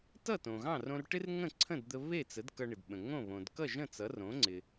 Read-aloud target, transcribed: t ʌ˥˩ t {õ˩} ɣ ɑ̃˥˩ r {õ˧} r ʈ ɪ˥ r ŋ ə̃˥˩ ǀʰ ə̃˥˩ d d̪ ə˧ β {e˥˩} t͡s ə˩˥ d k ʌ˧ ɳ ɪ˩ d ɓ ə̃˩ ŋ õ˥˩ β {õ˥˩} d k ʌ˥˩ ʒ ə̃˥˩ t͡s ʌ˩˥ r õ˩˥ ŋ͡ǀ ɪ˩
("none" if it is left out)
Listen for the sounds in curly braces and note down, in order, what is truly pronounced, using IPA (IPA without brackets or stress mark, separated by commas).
õ˩, õ˧, e˥˩, õ˩